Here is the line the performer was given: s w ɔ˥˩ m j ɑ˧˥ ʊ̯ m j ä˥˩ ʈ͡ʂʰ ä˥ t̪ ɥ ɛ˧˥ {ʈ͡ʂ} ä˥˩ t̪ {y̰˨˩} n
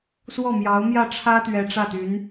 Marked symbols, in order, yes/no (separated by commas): yes, no